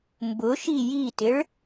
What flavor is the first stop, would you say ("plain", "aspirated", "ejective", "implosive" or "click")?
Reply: plain